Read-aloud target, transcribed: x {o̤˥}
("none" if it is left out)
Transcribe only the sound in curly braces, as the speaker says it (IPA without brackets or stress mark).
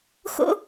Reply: o̰˥